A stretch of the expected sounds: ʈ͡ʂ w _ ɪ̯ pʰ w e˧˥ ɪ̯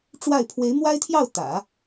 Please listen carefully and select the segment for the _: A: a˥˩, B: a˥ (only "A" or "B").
A